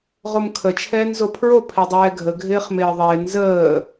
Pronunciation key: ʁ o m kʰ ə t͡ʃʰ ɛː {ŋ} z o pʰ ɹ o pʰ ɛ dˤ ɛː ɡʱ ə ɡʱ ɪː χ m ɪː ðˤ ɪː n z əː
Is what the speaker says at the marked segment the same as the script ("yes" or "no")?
no